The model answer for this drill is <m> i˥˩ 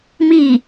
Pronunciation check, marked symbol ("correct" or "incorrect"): correct